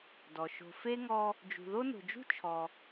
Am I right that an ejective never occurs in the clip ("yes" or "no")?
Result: yes